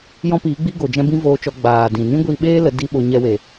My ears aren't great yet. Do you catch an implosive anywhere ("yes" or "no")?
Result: yes